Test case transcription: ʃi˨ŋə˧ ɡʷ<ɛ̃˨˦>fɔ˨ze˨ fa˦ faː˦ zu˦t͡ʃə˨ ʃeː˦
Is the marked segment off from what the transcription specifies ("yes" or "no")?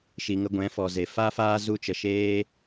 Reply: no